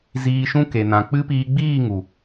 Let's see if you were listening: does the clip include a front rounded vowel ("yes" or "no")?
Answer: no